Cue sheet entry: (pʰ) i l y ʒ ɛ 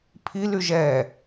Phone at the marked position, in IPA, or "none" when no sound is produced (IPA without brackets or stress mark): pʰ